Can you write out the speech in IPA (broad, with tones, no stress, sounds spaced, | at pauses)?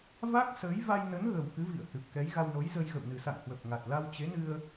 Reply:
v a˦˥ k̚ s əː˨˦ j v a˧ j n ə˨˦ n ɣ ə˨˩ w k ɨ˨˦ v ḭ˧˨ ə̯ h ɨ˨˩ p̚ k ɛ˨˦ j ɣ a˧ w n o˨˦ j z ə˧ j ɣ ə̰˧˨ w n ɨ˨˩ s a̰˧˨ ŋ h w ə˨˩ p̚ ŋ a˨˩ t̚ l a˧ w t͡ɕ e˨˦ n ɨ˧ ə̯